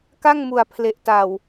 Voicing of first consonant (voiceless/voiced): voiceless